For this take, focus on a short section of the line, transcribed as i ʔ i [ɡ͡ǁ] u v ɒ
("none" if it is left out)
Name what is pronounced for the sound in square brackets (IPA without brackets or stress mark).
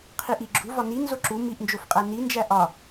ɡ͡ǁ